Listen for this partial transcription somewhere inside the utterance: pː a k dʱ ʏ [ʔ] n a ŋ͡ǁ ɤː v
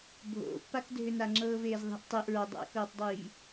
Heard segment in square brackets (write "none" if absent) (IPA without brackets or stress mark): none